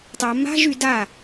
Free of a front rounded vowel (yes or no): no